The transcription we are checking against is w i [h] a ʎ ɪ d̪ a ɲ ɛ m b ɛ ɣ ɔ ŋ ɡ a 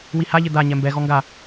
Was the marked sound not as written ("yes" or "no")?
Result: no